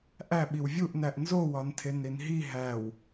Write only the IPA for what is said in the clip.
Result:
ʔæ ɓiwvʲuʔ næʔnzo wɒntʰenɾinɦi ɦæw

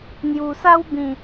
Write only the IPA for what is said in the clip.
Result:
n̪ju˨˩sa˦wbĩ˨˩

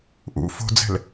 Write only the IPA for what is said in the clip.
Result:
ʔṵ fo̤d͡zɛ̤l

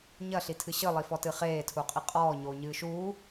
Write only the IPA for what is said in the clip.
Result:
ɲɐɬitʰɨ ɕɨlˠifɔtɨ χeːtʰuqʼi qʼɔːɲoːɲɨː ʃuː

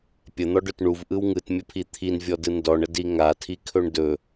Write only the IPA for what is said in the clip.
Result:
pʲən̪ɔɖɵt ɳuvʔɯw ŋɯtmʲəpʰi t̪ʰinvʲɔdɯ ndɔɳədi ŋatʰikʰɵɳ dɵ

